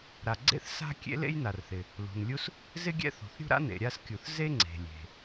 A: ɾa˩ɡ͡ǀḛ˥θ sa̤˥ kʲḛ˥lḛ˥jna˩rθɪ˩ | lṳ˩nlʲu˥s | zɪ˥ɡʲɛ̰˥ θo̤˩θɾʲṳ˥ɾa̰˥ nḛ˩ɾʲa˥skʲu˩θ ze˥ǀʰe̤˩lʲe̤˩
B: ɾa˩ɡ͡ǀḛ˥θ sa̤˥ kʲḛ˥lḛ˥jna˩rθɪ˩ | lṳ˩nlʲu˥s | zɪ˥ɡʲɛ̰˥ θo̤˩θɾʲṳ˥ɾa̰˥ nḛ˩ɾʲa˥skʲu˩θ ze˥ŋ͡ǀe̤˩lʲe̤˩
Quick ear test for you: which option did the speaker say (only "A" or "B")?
B